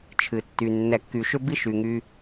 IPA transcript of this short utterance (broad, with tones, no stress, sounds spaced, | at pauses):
t͡ʃʰ ɨ˨ tː y˨ nː ɛ˨ kː y˨ ʃ ʏ˦ b i˦ ʃ y˨ ŋ y˦